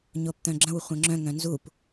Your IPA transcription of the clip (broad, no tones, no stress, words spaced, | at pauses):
ɲopt̪œ̃ɡ͡ǁə̃w χʷœ̃ŋ͡ǁœ̃ŋ œ̃nzup